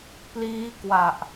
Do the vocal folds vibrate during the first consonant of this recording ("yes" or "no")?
no